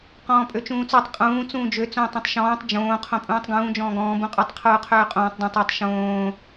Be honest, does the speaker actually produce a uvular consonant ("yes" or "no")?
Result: yes